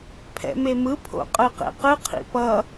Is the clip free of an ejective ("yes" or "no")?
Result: no